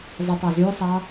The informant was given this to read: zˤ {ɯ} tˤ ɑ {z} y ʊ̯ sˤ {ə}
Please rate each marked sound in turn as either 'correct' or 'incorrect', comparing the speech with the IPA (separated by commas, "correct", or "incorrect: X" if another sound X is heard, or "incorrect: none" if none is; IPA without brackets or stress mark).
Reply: correct, correct, incorrect: ɑ